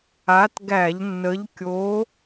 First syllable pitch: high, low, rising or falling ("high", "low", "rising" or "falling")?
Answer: rising